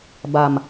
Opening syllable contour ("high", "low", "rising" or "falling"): low